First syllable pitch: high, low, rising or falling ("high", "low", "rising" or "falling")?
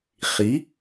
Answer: rising